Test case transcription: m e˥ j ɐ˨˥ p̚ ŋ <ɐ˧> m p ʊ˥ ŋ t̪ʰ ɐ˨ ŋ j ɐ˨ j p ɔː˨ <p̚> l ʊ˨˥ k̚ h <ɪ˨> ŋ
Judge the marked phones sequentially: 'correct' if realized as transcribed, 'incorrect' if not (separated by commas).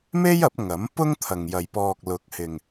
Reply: incorrect, incorrect, correct